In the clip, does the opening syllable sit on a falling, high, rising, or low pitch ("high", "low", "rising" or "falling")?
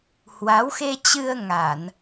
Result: rising